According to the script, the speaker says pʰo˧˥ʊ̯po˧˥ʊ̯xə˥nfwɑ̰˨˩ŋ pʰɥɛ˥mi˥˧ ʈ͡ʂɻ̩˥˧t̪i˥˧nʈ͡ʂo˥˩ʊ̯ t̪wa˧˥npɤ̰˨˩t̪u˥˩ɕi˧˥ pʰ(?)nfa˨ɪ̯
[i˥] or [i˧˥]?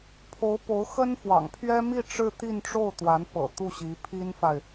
i˥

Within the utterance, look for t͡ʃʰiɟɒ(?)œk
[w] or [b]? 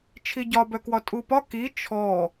b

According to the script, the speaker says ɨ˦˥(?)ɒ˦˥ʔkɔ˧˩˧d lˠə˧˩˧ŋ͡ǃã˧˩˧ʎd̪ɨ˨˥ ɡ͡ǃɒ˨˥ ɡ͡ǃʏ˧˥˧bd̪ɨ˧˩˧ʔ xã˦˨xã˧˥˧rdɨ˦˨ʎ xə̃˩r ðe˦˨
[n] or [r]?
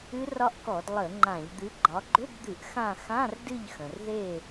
r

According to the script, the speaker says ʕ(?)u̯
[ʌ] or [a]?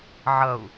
ʌ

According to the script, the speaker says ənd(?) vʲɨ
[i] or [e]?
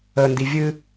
i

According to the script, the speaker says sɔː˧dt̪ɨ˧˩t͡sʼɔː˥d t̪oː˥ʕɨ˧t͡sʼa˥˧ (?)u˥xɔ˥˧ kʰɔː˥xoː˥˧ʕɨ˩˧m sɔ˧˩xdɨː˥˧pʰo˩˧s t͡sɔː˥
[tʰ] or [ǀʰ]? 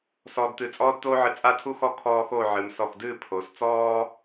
tʰ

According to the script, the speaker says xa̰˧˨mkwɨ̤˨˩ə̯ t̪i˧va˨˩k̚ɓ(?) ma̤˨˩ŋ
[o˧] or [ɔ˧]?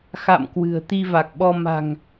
ɔ˧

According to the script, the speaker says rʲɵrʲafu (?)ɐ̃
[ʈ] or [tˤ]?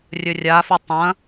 tˤ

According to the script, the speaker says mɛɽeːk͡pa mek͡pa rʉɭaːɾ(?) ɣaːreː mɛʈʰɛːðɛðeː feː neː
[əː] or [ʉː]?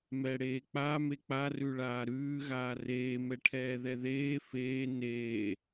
ʉː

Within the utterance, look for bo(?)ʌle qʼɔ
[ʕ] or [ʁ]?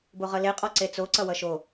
ʁ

